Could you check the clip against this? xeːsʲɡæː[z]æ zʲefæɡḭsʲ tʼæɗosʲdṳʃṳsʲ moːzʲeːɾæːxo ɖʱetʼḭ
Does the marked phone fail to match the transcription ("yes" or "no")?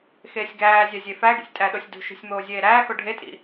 yes